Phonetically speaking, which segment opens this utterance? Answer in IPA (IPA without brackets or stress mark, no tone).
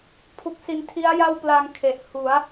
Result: pʰ